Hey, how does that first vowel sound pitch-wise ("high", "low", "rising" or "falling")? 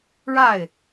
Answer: falling